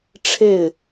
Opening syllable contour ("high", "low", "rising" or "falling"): falling